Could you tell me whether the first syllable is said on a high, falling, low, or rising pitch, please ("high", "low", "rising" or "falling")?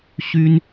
high